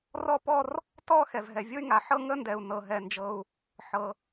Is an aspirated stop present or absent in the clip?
absent